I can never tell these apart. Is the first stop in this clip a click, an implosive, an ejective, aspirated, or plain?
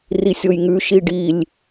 plain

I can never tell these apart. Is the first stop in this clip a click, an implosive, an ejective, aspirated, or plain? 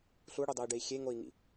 plain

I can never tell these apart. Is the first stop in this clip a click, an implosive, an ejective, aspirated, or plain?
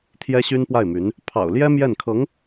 aspirated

